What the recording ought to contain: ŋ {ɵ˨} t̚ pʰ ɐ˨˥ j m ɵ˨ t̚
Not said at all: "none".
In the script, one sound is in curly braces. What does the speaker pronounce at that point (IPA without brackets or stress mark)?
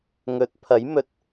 ɵ˨˥